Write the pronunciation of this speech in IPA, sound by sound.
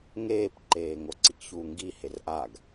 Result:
ŋ eː p ǃ eː ŋ o ǀ i k ç uː ŋ ɡ i h e r ʔ a ɡ

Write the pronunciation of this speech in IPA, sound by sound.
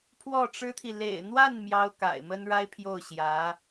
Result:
pʰ w ɔ˥˩ ʈ͡ʂ ɻ̩˥ t̪ʰ i˨ l ḛ˨˩ ɪ̯ n̪ w a˥˩ n m j ɑ˥ ʊ̯ k a̰˨˩ ɪ̯ m ə˥ n ɻ a˥ ɪ̯ pʰ j o˥˩ ʊ̯ ɕ j ä˧˥

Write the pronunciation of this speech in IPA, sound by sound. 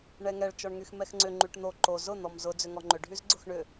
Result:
ɳ ɛ ŋ ɛ ɭ t͡ʃ ɔ ɳ ŋ y x m ɛ x ŋ͡ǀ ʏ ŋ͡ǃ y ʈ n̪ o ǃ o z ʊ n̪ ɔ m z ʊ d͡z ʏ ŋ ɔ ŋ͡ǃ ʏ ɖʱ y z ɡ͡ǀ ʊ x ɳ ʏ

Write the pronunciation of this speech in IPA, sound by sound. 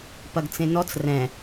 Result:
p ɐ ɡ t͡s ẽ n ɔ t͡s r ɛ̃

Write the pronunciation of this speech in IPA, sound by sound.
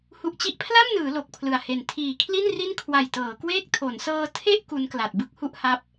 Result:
h u˨˩ ʔ t͡ɕ i˦˥ ʔ pʰ l a˥˩ m n ɯː˩˦ l o˨˩ k̚ pʰ l ɯ˨˩ a̯ h e˨˩ n tʰ iː˨˩ kʰ l i˥˩ n r i˥˩ n kʰ w a˨˩ j t ɤː˩˦ k w eː˥˩ k̚ tʰ o˩˦ n s ɤː˧ tʰ e˥˩ ʔ k u˦˥ n k l a˨˩ t̚ b ɯ˥˩ k̚ h u˦˥ ʔ h a˦˥ p̚

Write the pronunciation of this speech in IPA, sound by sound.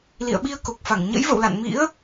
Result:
l ḭ˧˨ ə̯ ɓ i˧ ə̯ k o˨˩ k̚ f a˧˩ ŋ ɲ ə̰˧˥ j v ə̰˧˨ w l a̰˧˨ n m ḭ˧˥ ə̯

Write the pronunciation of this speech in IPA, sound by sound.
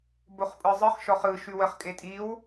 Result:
b o χ pʼ ɯ zˤ ɯ χ ʃ ɔ χ ɯ ʃ ʉ w ə χ kʼ e tʼ i w

